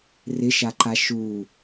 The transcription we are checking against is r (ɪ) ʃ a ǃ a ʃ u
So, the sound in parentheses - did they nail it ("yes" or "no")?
yes